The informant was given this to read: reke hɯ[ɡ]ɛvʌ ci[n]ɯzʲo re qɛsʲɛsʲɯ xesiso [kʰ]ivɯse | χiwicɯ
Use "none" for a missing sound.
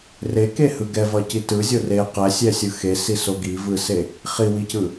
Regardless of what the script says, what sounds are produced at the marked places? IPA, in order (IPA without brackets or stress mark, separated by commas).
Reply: ɡ, t, ɡ